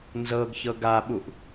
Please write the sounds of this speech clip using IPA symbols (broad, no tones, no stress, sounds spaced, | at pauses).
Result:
n z ɤ ɡ ç ɤ ɡ a ɓ u ʔ